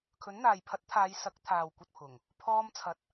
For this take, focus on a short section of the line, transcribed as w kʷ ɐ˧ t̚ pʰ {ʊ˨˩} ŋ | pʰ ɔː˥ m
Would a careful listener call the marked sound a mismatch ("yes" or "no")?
no